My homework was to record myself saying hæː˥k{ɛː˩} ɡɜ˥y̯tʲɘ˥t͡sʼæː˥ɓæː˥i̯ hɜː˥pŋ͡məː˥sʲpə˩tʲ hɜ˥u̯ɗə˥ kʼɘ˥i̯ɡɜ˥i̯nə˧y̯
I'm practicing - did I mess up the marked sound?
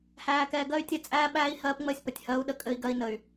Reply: yes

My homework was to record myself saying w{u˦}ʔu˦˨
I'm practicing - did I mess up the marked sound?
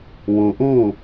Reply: yes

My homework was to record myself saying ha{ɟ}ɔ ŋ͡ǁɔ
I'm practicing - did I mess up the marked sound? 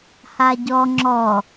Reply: no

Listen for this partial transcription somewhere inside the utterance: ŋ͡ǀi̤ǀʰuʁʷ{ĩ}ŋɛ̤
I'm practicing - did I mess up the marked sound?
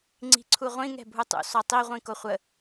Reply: no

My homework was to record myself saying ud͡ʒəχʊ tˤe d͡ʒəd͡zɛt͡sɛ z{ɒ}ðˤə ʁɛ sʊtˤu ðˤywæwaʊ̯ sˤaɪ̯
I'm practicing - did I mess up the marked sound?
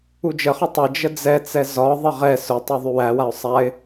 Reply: no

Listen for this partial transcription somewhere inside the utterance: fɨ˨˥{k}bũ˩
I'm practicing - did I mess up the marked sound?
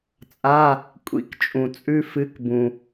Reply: no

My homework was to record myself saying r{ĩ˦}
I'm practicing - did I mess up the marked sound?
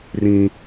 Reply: no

